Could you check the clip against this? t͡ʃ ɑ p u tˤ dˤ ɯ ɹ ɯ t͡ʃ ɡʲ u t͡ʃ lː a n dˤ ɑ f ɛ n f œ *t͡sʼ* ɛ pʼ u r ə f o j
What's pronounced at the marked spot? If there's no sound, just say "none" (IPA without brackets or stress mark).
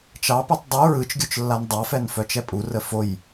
t͡ʃ